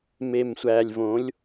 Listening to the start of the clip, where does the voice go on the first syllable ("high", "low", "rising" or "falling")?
low